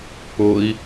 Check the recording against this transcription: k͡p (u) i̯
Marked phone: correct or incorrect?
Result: incorrect